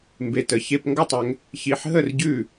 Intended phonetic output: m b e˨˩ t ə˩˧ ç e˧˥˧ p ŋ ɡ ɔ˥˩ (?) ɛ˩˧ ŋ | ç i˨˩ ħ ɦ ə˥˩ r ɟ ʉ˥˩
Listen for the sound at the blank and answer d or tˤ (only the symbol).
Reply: tˤ